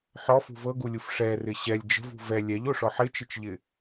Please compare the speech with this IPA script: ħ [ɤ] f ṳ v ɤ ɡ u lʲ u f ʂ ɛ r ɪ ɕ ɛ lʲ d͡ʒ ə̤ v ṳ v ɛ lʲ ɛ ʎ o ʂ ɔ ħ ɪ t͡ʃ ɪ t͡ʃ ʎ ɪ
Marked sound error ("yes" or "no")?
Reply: yes